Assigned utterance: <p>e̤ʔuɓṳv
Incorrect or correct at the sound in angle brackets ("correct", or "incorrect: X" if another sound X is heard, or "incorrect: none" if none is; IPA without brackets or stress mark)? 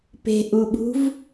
correct